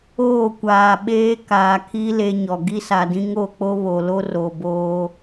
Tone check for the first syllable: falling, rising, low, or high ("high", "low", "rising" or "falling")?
falling